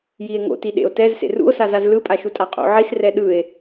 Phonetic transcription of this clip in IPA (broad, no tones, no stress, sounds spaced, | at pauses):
j i e̯ ŋ o̰ t i ɗ ḛ o̯ t ɛ z s ḛ r ṵ o̯ s a z a z l ɯ pʼ a ʃ u tʼ a qʼ o̰ ʕ i s r ɛ ɗ ɯ e̯